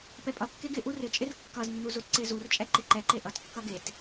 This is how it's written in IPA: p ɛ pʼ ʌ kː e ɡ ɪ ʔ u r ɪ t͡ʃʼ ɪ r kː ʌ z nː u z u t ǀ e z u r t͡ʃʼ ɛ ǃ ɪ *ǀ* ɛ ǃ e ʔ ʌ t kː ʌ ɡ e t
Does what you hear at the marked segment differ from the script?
yes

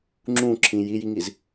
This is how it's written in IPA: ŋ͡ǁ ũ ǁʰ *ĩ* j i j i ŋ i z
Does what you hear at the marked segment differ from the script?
no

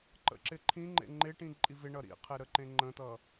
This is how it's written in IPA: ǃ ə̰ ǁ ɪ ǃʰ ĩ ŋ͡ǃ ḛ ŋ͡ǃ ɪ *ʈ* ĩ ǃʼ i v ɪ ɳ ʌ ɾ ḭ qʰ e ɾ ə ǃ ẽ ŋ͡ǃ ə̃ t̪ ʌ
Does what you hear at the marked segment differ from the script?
no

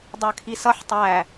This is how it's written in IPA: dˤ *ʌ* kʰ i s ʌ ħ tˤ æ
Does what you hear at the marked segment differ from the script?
yes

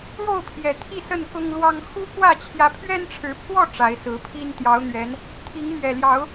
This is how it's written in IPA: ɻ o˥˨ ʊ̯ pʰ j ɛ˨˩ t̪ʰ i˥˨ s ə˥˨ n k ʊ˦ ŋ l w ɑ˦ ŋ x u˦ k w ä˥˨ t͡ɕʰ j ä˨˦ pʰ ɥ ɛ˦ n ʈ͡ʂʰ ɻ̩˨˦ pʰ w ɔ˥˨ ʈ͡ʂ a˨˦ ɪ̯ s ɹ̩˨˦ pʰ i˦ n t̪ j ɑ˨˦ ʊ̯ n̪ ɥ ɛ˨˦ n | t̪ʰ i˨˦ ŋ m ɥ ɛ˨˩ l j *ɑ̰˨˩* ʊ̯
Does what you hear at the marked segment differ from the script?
yes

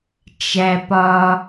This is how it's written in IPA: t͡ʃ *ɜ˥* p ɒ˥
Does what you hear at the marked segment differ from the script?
yes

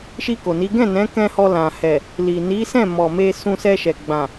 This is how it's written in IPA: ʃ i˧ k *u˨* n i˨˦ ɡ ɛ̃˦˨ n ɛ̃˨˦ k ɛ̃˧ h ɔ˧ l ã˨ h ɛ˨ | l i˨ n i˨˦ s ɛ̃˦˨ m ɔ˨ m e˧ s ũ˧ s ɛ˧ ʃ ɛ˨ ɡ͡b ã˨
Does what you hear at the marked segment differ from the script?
yes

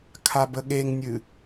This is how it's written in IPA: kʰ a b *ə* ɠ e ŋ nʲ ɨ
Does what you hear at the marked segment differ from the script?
no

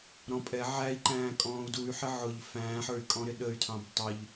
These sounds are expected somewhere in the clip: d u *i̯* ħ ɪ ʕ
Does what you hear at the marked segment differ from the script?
yes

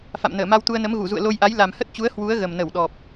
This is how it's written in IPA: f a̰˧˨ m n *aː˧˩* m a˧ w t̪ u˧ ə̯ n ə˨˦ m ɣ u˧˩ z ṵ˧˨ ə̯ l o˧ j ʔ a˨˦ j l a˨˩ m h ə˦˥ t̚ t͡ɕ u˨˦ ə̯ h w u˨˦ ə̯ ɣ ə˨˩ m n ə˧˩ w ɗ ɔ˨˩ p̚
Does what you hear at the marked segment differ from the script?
yes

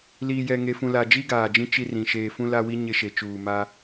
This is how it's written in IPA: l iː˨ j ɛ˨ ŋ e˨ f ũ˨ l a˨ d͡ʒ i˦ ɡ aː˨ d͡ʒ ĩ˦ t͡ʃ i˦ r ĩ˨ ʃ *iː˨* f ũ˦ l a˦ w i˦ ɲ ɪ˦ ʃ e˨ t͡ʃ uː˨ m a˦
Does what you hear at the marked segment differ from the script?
yes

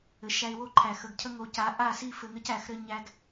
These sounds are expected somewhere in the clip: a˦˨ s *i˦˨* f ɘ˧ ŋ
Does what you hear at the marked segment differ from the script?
no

